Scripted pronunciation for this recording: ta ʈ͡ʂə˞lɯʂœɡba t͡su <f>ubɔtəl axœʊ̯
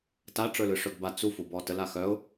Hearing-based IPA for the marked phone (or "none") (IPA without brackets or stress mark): f